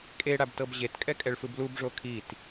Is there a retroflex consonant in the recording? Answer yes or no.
yes